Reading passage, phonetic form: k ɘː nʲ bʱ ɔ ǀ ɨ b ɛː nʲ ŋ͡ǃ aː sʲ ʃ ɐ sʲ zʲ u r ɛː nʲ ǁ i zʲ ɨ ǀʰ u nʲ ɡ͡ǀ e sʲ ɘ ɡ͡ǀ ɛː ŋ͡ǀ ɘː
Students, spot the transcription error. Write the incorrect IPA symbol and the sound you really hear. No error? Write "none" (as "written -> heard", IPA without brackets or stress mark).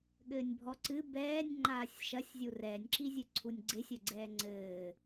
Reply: k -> ɠ